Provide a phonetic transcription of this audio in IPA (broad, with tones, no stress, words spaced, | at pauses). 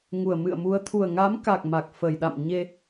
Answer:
ŋu˨˩ə̯mɨ̰˧˨ə̯mu˨˦ə̯ t̪ʰu˨˩ə̯ŋa˨˦m ka˨˩k̚ ma˨˩k̚fə˨˩jɗa̰˧˨m ɲe˧